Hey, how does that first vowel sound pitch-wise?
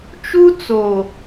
high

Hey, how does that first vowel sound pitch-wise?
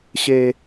low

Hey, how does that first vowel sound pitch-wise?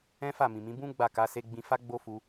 high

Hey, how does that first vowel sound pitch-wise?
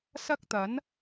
high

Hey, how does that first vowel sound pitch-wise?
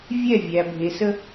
falling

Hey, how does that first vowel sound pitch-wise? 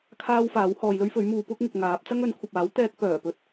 high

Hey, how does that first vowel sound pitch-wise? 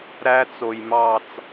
high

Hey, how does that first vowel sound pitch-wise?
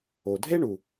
low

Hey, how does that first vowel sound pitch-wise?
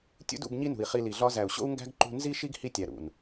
high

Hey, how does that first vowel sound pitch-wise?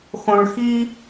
low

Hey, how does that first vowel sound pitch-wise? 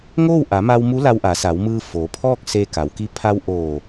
falling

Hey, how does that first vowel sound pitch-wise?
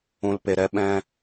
low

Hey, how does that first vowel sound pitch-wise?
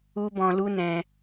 high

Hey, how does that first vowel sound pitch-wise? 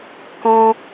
high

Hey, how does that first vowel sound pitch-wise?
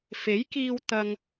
rising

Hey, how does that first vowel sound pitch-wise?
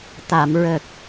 low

